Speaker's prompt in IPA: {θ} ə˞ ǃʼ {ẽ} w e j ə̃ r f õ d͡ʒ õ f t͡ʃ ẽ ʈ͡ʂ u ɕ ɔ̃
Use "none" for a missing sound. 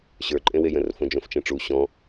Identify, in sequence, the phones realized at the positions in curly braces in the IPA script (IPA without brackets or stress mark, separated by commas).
ɕ, ẽ